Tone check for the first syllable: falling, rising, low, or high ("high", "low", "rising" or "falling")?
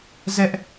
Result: high